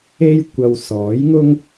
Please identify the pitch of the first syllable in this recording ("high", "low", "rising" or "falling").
high